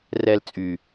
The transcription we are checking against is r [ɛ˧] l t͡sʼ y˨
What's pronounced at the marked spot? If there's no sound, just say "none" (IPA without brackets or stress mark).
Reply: ɛ˧